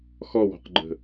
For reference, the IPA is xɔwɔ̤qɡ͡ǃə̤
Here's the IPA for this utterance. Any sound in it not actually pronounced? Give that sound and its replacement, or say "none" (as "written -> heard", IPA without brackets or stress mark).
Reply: none